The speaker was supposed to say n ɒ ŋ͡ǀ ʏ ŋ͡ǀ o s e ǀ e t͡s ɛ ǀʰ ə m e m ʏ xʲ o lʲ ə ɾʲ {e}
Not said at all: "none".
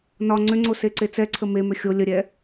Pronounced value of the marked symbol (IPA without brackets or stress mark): ɛ